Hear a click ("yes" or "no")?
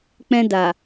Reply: no